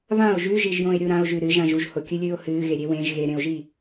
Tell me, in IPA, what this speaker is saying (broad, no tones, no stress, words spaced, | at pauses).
βão̯ ʒʉʒiʒjõe̯ɾʲu ɾão̯ʒʉ ɾɨʒãʒ uʒhokʲɨlʲɨːo̯ hɨːɣeɾʲe wẽʒ ɣeɾẽo̯ʒi